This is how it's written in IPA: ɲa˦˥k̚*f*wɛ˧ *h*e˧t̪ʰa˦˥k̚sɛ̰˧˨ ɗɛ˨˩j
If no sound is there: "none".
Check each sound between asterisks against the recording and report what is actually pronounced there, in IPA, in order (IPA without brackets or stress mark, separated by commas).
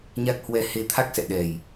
h, h